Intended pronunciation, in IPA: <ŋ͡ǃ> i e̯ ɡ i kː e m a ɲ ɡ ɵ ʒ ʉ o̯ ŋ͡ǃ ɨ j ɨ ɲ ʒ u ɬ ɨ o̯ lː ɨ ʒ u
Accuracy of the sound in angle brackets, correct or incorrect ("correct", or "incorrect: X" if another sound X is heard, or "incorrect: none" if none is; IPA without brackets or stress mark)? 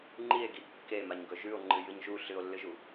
correct